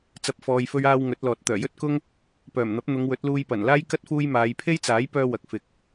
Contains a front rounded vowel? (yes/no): yes